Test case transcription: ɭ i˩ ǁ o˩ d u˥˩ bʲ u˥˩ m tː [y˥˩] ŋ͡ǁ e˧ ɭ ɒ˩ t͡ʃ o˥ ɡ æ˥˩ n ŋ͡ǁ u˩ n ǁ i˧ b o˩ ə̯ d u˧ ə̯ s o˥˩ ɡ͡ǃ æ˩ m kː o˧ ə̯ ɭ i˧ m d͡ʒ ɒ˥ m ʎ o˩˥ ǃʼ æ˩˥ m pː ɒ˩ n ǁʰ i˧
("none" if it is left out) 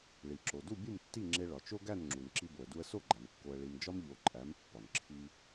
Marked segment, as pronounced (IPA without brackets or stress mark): i˥˩